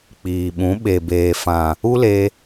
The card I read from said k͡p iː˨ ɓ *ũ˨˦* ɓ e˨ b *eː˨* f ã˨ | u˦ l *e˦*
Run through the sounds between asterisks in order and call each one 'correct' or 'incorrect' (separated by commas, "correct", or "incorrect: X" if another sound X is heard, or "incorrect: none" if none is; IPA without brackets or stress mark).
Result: correct, correct, incorrect: e˧